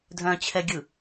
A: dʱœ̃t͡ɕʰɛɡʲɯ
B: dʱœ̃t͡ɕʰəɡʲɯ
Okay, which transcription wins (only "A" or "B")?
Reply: A